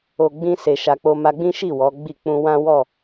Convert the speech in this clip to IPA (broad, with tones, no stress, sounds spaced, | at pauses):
o˨ ɡ͡b ĩ˧ s e˧ ʃ a˧ k͡p o˦ m a˧ ɡ͡b ĩ˦ ʃ i˦˨ w ɔ˨˦ ɡ͡b i˦˨ k͡p ũ˧ w ã˦ w ɔ˦˨